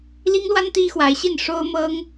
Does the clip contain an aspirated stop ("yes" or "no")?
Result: no